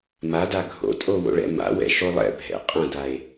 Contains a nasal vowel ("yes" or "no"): yes